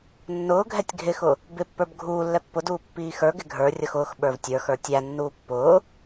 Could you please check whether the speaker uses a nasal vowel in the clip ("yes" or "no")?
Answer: no